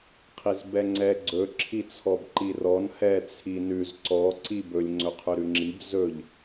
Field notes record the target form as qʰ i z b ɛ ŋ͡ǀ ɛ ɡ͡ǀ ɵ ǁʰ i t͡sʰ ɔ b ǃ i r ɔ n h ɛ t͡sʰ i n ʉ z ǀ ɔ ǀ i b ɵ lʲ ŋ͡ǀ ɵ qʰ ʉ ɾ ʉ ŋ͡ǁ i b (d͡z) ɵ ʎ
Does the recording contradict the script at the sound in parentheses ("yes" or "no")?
yes